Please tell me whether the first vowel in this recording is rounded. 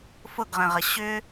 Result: yes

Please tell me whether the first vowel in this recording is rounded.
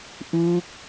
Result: yes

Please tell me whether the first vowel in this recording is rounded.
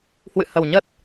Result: no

